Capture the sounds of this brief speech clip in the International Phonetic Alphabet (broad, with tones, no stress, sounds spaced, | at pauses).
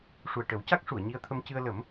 ʂ u˨˩ ə̯ ʈ ə˨˩˦ w c a˦˥ k̚ ʂ u˨˩˨ ə̯ ɲ i˧ ə̯ t̪ʰ ə˧ m c ɨ˧ ə̯ l ə˨˩˦ m